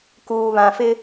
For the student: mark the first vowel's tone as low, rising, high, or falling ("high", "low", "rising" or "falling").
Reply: low